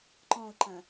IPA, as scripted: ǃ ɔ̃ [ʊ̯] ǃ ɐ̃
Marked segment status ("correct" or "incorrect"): correct